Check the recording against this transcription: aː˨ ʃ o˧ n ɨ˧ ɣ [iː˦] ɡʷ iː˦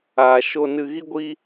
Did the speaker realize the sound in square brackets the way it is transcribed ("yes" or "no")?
no